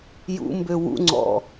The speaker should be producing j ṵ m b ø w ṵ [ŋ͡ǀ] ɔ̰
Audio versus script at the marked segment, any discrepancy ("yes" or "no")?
no